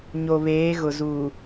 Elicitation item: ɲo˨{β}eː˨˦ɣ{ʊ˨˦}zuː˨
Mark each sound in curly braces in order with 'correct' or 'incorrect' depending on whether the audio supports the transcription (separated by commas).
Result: correct, incorrect